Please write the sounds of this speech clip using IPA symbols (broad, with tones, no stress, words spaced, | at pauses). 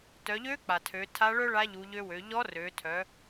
tœ˩˧ʎø˧˥ k͡pa˩tʰø˩˧ tʰa˧˥ɭœ˥ɭa˧˥ʎu˩˧ ʎø˧wø˩˧ ʎɔ˧˥rø˩˧tʰœ˩˧